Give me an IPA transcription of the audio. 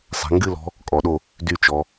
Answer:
sˤ ɛ̤˩˧ ŋ ɡ ɨ˦˨ l ɔ̤˧˥ | kʼ ɔ˩˧ ɗ o˦˨ | d y˦˨ t͡ʃ ɔ˩˧

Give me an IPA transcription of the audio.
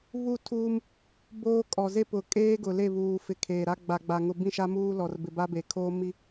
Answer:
β u˦˨ tʰ uː˦ m | b oː˦ kʼ ɔ˨ z e˦ p ʊ˨ kʼ eː˦ ɡ ʊ˨ l e˦˨ β uː˨ f ɪ˨ kʰ eː˨ ɾ a˦ ɡ͡b a˨ ɡ͡b a˨ ŋ ʊ˨ b ĩ˦˨ ʃ a˦ m uː˦ l ɔ˨ r b ɪ˨ b a˦ b e˨ kʰ oː˦ m i˦

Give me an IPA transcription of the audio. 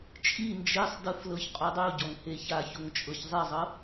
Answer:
t͡ʃʼ i n d͡ʒ e sˤ d ɯ f l ɤ ç qʼ u dˤ u ɟ ɔ ŋ h e ç a ç o ŋ t͡ʃʼ ɤ ç zˤ i zˤ ɤ

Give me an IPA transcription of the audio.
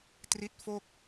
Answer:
t r i˦˥ t̚ f o˥˩ k̚

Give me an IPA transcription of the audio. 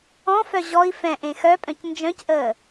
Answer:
ɔ̃ f œ ʑ ɔ i̯ f ɛ̃ ʔ ẽ x œ pʼ œ̃ c n d͡ʒ œ̃ c ʔ əː

